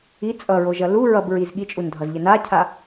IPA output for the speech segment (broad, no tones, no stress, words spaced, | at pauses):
i t͡sʼʌɹoʒʌ lu ɹʌbɹiz ɠit͡ʃʼundʱʌzʎɘ nacʰa